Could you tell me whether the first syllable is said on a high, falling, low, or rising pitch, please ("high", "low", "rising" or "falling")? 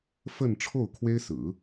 falling